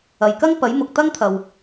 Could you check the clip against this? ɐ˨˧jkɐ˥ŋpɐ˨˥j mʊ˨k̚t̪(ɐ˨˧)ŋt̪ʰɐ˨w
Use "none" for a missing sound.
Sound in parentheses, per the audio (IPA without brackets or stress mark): ɐ˥